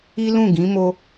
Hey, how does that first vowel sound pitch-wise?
high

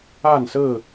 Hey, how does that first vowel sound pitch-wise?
falling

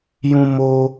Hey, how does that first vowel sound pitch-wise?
high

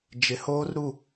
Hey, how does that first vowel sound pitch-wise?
low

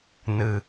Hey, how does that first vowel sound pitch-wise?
low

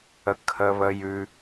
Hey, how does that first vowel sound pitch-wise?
rising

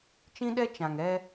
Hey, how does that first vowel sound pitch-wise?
high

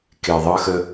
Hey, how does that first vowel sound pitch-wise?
low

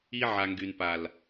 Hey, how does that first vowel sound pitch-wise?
high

